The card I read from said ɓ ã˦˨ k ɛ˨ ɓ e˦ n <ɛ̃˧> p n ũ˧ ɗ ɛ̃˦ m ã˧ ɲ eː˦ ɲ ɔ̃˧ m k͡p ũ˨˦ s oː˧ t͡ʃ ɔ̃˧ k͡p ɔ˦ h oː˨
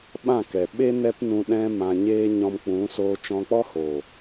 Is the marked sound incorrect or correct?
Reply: incorrect